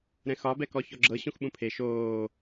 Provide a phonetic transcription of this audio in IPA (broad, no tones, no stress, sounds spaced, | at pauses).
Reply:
ɾ ɛ̃ x ɒ b ɛ k ɔ ç ɔ ɡ͡ǁ ɤ ɕ ũ x ɓ ũ pʰ e ʃ oː